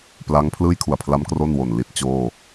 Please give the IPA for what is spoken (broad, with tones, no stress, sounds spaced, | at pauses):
p l a˦˥ ŋ pʰ l ɯː˥˩ j kʰ u˨˩ a̯ pʰ l a˦˥ m k r o˥˩ n w o˨˩ n l i˦˥ t̚ t͡ɕ oː˥˩